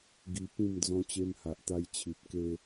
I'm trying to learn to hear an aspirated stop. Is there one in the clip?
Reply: yes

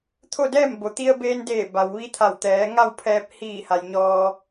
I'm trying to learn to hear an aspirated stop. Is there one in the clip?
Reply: yes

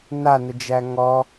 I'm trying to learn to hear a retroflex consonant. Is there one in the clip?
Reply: no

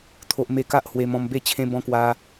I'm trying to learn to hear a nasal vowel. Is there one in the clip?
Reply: yes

